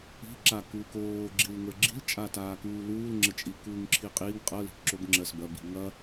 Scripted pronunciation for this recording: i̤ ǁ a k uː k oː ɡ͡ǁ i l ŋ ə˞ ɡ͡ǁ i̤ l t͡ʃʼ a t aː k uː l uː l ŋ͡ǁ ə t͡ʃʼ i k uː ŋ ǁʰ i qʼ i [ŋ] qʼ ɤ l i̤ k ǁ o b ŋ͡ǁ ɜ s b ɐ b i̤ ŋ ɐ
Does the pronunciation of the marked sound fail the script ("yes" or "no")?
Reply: no